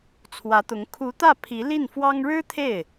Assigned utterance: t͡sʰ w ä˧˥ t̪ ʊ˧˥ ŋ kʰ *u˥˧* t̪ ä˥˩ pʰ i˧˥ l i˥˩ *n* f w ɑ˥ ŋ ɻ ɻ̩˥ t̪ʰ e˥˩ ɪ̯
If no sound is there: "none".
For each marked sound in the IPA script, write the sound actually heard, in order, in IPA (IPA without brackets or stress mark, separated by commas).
u˧˥, n